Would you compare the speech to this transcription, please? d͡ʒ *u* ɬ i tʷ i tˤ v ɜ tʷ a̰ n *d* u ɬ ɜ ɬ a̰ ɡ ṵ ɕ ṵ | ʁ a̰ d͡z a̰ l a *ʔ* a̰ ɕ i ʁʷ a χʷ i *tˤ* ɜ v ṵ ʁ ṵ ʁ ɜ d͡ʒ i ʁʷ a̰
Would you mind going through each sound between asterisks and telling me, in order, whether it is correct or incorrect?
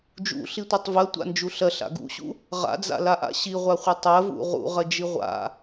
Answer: incorrect: ṵ, incorrect: d͡ʒ, correct, correct

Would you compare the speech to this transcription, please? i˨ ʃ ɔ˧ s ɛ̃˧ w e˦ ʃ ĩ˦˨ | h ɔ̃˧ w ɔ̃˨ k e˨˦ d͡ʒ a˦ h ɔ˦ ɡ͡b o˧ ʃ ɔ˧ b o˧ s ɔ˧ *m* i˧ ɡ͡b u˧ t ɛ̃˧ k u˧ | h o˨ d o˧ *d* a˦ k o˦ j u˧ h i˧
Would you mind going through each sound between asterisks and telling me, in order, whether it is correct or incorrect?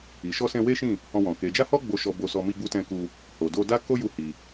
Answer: correct, correct

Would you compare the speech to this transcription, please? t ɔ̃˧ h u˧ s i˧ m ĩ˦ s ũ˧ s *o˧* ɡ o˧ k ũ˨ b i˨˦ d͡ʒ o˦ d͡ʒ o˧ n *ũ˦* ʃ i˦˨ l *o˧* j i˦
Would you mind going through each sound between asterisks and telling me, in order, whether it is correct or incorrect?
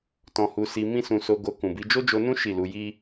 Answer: correct, correct, incorrect: u˧

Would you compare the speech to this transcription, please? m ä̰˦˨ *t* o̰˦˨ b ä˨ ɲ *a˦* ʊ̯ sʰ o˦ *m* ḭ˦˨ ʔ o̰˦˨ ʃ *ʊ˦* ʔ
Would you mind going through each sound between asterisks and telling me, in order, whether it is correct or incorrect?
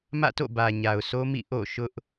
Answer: correct, incorrect: a˨, correct, correct

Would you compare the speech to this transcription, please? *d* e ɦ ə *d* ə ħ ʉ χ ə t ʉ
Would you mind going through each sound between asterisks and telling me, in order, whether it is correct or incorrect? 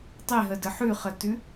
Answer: incorrect: tˤ, correct

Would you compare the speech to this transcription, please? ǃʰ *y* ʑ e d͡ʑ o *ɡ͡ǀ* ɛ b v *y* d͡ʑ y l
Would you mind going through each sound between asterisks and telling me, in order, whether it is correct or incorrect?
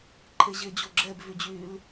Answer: incorrect: e, incorrect: ɡ͡ǁ, correct

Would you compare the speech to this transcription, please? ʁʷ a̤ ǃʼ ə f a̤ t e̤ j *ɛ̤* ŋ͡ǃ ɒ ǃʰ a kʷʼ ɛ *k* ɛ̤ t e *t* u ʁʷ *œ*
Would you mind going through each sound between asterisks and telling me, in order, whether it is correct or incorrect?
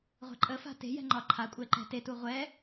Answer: correct, incorrect: ǃ, correct, incorrect: ɛ

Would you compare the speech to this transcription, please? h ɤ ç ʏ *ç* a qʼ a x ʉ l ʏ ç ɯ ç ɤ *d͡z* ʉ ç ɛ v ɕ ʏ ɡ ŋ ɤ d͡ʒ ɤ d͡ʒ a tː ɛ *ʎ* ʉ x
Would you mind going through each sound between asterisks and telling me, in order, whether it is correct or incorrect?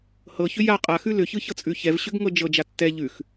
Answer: incorrect: j, incorrect: t͡sʼ, correct

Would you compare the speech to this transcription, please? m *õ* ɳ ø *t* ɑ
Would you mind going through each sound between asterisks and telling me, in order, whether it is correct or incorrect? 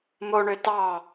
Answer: incorrect: o, correct

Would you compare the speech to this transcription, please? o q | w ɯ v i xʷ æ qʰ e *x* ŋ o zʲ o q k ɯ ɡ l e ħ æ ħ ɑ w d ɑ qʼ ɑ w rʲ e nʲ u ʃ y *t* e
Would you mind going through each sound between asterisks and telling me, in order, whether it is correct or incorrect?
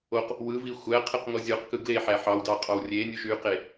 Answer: incorrect: q, incorrect: q

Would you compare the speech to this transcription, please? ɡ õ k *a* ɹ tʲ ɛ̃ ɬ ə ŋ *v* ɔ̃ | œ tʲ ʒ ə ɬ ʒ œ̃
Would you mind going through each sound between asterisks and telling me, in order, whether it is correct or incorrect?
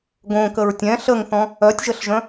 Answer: incorrect: ə, incorrect: θ

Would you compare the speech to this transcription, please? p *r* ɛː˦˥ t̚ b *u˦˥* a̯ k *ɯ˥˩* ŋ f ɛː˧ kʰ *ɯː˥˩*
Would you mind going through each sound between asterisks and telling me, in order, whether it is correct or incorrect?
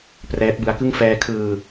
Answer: correct, incorrect: ɯ˦˥, correct, incorrect: ɯː˧

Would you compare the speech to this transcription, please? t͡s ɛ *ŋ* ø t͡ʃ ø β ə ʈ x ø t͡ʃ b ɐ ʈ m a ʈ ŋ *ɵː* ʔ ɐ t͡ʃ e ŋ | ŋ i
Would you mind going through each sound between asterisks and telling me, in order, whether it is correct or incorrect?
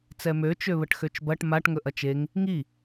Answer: incorrect: m, incorrect: ɵ

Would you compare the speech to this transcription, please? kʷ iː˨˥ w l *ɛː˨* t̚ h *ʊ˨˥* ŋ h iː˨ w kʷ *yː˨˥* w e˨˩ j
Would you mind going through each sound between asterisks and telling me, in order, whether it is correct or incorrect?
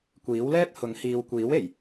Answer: incorrect: ɛː˥, correct, incorrect: iː˨˥

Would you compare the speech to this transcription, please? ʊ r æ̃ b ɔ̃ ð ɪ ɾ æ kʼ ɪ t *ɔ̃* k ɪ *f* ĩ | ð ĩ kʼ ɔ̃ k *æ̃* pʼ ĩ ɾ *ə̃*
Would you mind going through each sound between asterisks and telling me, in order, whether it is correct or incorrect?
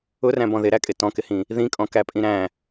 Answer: correct, incorrect: h, incorrect: æ, incorrect: æ̃

